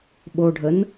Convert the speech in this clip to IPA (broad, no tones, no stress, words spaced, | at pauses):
ɓoɖʱən